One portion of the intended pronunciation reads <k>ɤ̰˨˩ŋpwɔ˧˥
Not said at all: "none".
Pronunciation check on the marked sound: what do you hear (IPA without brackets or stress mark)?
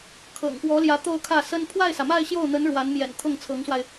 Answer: kʰ